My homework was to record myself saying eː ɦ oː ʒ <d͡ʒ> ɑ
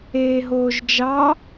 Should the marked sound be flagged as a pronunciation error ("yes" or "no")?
no